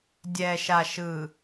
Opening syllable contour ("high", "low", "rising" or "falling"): low